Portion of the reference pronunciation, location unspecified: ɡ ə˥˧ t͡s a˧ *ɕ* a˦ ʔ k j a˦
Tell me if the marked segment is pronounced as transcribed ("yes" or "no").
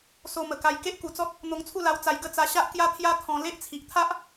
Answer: yes